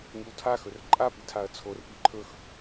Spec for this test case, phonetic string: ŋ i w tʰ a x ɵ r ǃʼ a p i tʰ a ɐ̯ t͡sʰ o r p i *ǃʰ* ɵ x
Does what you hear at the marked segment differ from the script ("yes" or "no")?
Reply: no